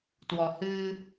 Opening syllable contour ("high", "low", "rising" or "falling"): low